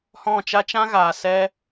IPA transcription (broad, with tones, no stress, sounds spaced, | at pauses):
h ɔ̃˦˨ t͡ʃ a˦ t͡ʃ ã˦ ɣ aː˨ s ɛ˦